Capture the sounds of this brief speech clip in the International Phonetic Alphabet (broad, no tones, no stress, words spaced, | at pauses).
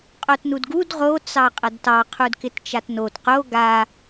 qʼotnudɡud ʁo t͡sɑqʼɐdtɑ qʰudkɪtt͡ʃatnot qo ɡa